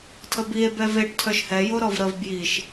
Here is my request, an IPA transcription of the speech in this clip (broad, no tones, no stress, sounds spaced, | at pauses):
tʰ ə b i e̯ b ɛ v e ʈ tʰ œ ʃ h ɛ j o ɾ ɔ v ɾ ə v b j i ʃ